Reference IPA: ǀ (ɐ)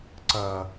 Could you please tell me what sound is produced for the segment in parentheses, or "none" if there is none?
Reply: ɐ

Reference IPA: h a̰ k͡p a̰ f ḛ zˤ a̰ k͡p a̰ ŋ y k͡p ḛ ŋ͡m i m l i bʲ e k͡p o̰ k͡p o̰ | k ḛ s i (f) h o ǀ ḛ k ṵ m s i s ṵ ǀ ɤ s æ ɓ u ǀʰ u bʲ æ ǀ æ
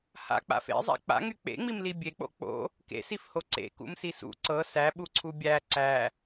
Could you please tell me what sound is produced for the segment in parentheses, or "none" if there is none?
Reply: f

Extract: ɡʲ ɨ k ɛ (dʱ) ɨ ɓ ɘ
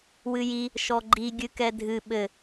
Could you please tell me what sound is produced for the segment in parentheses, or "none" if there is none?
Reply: dʱ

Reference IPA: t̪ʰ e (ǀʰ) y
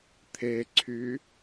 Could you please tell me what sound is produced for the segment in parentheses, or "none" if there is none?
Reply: ǀʰ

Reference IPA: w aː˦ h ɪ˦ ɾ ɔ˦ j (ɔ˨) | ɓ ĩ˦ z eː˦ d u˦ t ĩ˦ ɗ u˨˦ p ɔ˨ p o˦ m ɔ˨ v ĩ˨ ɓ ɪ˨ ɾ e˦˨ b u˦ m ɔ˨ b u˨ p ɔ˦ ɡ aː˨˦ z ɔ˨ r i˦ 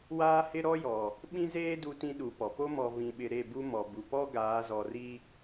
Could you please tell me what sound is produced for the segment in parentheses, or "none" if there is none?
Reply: ɔ˨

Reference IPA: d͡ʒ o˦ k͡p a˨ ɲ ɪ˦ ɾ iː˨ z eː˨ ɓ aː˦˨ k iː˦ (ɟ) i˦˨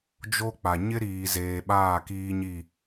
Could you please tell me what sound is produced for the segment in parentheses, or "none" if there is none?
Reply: ɲ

